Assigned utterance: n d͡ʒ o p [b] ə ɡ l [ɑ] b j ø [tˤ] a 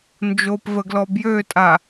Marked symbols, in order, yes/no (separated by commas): no, no, no